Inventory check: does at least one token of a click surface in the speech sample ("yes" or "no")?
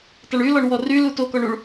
no